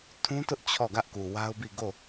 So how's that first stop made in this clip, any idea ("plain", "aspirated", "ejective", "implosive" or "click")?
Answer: aspirated